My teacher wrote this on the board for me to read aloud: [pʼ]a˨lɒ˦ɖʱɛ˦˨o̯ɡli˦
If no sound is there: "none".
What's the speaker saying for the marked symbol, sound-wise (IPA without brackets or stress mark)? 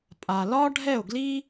pʼ